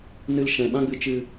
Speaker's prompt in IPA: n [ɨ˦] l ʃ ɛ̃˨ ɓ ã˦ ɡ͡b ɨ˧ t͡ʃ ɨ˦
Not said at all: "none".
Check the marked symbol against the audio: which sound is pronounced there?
ɨ˦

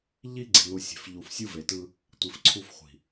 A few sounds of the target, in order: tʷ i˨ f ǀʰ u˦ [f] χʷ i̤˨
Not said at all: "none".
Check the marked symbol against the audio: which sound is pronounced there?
f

